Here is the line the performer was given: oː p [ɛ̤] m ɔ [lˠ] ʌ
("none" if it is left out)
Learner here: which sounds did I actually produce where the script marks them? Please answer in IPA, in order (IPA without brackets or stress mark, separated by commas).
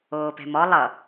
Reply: ɛ̤, lˠ